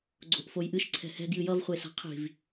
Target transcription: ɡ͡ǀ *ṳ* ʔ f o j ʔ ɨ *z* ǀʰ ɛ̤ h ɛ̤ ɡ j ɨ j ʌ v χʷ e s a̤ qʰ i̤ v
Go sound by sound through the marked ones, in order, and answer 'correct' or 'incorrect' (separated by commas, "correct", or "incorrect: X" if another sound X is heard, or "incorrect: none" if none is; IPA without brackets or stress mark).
incorrect: o̤, incorrect: ʃ